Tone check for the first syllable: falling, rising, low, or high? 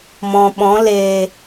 low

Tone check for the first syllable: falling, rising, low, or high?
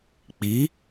rising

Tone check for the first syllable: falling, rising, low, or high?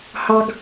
high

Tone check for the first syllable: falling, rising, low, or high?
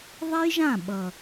high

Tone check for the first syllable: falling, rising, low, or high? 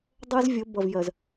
high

